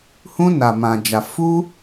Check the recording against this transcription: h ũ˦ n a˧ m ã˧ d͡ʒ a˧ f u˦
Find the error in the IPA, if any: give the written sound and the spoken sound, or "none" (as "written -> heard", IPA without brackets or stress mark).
none